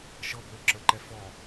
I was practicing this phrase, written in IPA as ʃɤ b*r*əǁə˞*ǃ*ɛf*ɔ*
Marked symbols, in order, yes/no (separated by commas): no, yes, yes